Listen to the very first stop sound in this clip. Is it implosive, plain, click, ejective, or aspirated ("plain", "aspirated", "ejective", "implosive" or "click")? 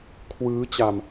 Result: aspirated